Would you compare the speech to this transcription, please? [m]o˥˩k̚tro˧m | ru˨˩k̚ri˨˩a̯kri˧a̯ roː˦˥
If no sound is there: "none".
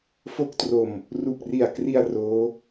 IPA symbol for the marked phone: f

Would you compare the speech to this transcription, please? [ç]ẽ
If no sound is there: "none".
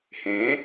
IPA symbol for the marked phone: h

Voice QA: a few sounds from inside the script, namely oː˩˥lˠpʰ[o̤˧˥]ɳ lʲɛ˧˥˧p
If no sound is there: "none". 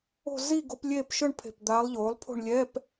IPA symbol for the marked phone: o̤˥˧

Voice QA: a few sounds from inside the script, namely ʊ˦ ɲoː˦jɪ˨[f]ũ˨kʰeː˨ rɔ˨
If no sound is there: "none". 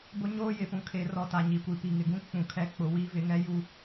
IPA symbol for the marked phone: f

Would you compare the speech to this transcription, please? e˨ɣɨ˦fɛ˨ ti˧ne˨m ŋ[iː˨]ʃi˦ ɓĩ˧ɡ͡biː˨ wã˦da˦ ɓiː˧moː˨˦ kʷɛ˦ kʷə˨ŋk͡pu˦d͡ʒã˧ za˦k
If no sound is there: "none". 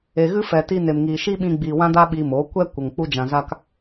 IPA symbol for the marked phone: iː˨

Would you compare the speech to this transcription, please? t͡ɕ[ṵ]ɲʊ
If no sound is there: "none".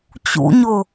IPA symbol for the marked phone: ṵ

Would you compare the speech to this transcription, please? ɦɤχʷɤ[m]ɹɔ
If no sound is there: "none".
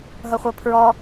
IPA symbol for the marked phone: pʰ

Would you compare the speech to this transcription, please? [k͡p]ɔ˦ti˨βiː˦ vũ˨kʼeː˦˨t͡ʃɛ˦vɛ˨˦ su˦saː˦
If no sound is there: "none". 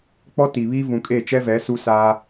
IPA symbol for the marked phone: k͡p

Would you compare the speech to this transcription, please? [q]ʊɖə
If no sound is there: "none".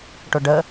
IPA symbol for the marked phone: ʈ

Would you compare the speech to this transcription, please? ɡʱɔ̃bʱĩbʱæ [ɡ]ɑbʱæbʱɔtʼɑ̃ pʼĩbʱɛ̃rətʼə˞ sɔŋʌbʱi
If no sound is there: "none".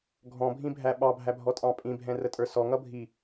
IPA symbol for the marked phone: ɓ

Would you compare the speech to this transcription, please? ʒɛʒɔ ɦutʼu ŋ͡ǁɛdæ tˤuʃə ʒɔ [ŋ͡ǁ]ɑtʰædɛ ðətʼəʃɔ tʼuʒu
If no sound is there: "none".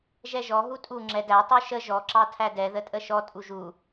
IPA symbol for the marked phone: ǁ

